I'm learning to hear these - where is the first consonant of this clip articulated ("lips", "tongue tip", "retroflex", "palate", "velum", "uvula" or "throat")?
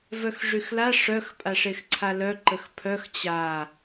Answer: lips